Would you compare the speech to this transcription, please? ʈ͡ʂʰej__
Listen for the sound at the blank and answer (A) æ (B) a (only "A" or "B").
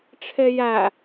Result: A